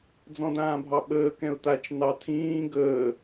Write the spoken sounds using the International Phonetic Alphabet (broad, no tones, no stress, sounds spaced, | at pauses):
d͡z ɔ̃ d ãː bʱ ɑ ɓ əː k ɛ̃ ʊ̯ t a t͡ʃ n ɑ tʰ ĩː ɡ əː